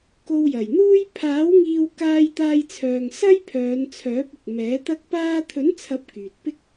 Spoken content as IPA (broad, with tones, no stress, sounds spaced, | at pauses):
k o˧ w j ɐ˨˩ j n̪ uː˥ j pʰ aː˨˥ w ŋ iː˧ w k aː˧ j t̪ aː˧ j t͡sʰ œː˨ ŋ s ɐ˥ j pʰ œː˨˧ n t͡sʰ œː˨˥ p̚ ɪ˨ k̚ m ɛː˨˥ t̪ ɐ˥ k̚ p aː˥ t̪ʰ ɵ˨˥ n t͡sʰ ɐ˨˥ p̚ k yː˨ t̚ p ɪ˥ k̚